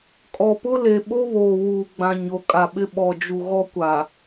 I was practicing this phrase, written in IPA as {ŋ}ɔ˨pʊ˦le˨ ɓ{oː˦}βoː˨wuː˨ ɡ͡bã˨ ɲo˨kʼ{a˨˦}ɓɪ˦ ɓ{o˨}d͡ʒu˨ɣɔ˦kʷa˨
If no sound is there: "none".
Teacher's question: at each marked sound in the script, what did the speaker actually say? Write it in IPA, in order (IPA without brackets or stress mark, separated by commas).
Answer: kʼ, o˦, a˨, ɔ˨